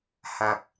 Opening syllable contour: low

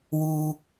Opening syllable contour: high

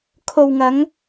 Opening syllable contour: low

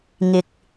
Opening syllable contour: low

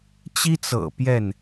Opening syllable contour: high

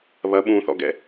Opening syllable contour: rising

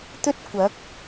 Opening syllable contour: high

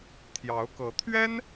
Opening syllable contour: rising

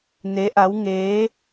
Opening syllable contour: rising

